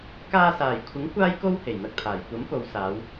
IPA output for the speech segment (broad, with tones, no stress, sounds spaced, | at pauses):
k aː˧ s aː˨˩ j kʷʰ ɪ˨˥ ŋ kʷ aː˥ j k o˥ w h e˨˩ j n̪ ɐ˧ k̚ t̪ʰ aː˨˩ j kʷ ɐ˨˥ m p o˨˧ w s aː˨˧ w